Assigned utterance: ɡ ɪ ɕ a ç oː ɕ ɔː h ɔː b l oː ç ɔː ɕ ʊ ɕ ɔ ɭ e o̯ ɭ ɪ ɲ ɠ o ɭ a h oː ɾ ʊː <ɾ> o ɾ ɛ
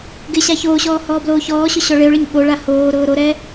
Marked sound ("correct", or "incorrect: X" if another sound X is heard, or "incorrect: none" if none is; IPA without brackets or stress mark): correct